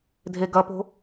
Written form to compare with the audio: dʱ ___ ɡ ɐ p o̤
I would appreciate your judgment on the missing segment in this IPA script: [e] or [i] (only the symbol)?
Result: e